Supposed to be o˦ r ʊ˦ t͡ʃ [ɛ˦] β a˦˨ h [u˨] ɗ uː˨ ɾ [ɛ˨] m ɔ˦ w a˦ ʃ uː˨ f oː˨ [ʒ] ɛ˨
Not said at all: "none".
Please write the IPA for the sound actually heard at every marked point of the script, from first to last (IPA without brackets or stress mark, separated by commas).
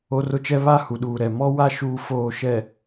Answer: ɛ˦, u˨, ɛ˨, ʃ